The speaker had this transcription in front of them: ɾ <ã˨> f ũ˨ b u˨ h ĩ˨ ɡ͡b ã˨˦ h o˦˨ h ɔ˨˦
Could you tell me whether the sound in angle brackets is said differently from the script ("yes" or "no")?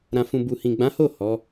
no